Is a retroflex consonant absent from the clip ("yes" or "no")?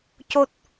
yes